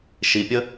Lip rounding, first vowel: unrounded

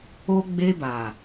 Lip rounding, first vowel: rounded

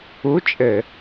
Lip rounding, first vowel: rounded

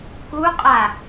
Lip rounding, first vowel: rounded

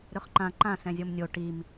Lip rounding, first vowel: rounded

